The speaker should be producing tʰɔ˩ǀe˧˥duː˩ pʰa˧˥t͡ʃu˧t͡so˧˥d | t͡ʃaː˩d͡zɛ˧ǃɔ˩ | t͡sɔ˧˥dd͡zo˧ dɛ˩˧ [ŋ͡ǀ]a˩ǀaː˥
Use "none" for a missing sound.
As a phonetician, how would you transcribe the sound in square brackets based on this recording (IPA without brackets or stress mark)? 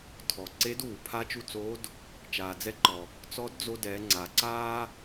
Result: ŋ͡ǀ